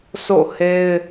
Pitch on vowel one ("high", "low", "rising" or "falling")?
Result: falling